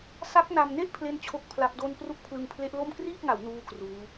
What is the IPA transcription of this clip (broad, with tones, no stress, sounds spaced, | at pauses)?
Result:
s a˦˥ k̚ n a˧ m n e˥˩ ʔ pʰ l e˥˩ n t͡ɕʰ o˥˩ k̚ pʰ l a˦˥ p̚ d o˥˩ n p r u˥˩ k̚ pʰ l ɯ˧ ŋ pʰ l e˦˥ ʔ l o˥˩ m k r iː˥˩ k̚ ŋ a˩˦ w n uː˥˩ k r uː˦˥